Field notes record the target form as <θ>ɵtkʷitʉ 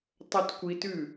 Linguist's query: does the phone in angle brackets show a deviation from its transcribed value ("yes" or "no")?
yes